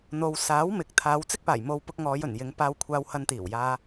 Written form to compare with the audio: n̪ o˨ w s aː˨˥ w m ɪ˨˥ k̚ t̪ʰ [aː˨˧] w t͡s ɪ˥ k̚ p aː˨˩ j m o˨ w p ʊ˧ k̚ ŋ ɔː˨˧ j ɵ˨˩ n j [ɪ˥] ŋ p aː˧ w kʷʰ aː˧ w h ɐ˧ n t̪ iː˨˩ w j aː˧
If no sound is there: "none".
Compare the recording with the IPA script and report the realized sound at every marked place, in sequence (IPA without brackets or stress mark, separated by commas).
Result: aː˨˧, ɪ˨˧